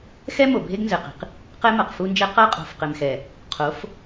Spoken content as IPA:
xɛ˦ mo˨bʱe˦ɡnzɘ˨qi̤˨q | qɛ˦mɐ˨qfu˦nd͡ʒɛ˦ qɐ˦ qʼo̤˨fqɘ˨mxɛ˨ | qʰo˨˦f

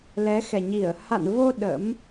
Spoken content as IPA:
lɛ˨˦xɛ˨˩ɲi˧˩ə̯ ha̰˧˨nvo˧ ɗə̰˧˥m

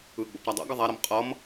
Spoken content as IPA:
ɯɡ͡bo̰p ɾadˤɛ̰ɡʌ ðˤaɾʌm qʼʌm

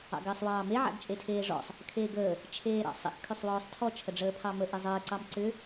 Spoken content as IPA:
ɑ̰ɡəːsˤwɑːme ʕa̰ɡt͡ʃʼetʰeːʐɔ̰sˤ | kʰeːɡəː | t͡ʃʰeːɾɑ̰sˤə̰x kʰʏsˤwɔːsˤtʰɔ t͡ʃʰəɖ͡ʐəːpʰɑmə ʔezˤəː ǀɑmǀʏ

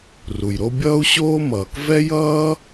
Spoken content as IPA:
ru˩jɾo˦ bʲʌː˦u̯ɕoː˦mʌː˩k vɛ˥jʌː˥

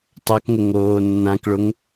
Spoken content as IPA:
tˤakŋʊ ŋoːnːãkɭʊŋ

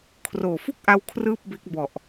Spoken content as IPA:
kʰroː˨˩fu˥˩k̚ʔa˧w kʰrɯː˥˩p̚be˦˥k̚ bɔ˨˩ʔ

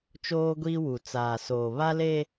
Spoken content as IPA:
t͡ʃoː˦ɡʷiː˦wu˨ t͡saː˨soː˨ βa˦le˦

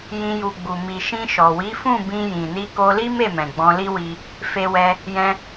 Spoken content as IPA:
jĩ˧ ju˨ɡ͡bu˨ mi˨ʃĩ˧ʃɔ˨ wi˨˦fũ˦˨bĩ˧ jĩ˨ni˧ko˧ li˦me˦˨mɛ̃˨ ɡ͡bɔ̃˧li˦wi˧ | fe˧wɛ˧ | jɛ̃˧

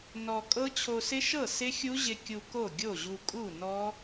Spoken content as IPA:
nɔ˧ kʼɤ˦˥t͡ɕʰo˧ sɪ˦˥ʃɤ˥˩ sɪ˦˥xʲu˦˥ʑɪ˧ kʲu˧ ko˥˩ɡʲo˥˩ʑu˧ kʼu˥˩nɔ˦˥

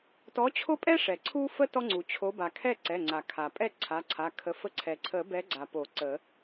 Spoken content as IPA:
tɔ˨˦t͡ɕʰo˦pʼɛ˦ʂɛ˩ ǀʰu˦fə˦ tɔ˦ŋ͡ǀu˩t͡ɕʰo˨˦ ba˩kʰɛ˥˨ ǀɛ˩˧˩ŋ͡ǀa˩kʰa˩pʼɛ˥˨ ǀʰa˩˧˩ǀʰa˩˧˩ kʰə˨˦fə˦ ǀʰɛ˩ǀʰə˨˩˦bɛ˨˦ɡ͡ǀa˩ po˨˩˦ǀə˨˩˦

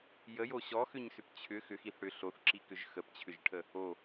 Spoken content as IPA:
jəjo ɕɔxʏɲsʏp t͡ɕʰʏ xʏxiθ ɽʏ ɬoθǁikʏʒ xəpt͡ɕʰʏʒʈʰə | o

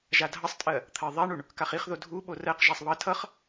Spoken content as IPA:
ʒadʱʌsˤtʼɜ | t̪ʰɜðˤaɳuɳ | kaχiχðo dʱu ɓorɜqʒasˤ βʌ tʰʌχ

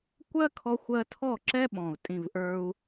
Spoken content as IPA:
kʷɜ˦kʰɔ˧xʷɜ˧tʰɔ˦˨ ǁɛ˦ɓɔ̃˨u̯ tʼĩ˦˨vʔə˞˦u̯

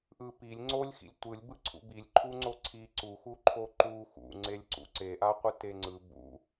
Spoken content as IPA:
ʔɯ pilʲ ŋ͡ǀolʲxḭlʲ tʷɯlʲ bɯǀʰṵbilʲǃʰu ŋ͡ǀoǀʰi ǀuxu ǃʰoǃu xṵŋ͡ǀelʲ ǀṵǀeʔaqʷɯ teŋ͡ǀɯ bṵ

